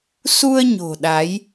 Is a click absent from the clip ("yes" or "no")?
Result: yes